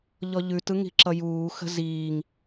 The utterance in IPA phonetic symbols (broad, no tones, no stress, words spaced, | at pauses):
ʎɔʎʉt ɯŋi̤ǁʌjuː xə̤ziːŋ